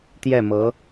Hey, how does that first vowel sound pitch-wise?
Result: falling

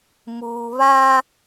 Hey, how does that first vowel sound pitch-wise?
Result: low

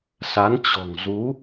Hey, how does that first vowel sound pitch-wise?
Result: rising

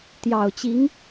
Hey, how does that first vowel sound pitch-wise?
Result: low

